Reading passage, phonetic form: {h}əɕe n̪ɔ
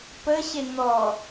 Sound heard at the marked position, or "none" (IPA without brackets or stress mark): p